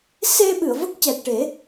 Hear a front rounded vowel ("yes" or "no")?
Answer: no